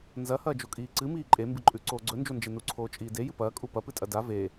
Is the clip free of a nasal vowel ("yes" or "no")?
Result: yes